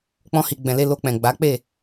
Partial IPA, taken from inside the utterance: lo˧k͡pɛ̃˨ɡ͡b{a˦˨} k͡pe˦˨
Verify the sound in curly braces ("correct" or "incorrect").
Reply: incorrect